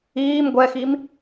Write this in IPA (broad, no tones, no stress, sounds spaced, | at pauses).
iː m ɡʷ ɛ x i m